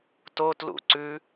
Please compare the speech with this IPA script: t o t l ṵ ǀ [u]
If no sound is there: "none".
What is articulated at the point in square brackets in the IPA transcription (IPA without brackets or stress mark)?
ʉ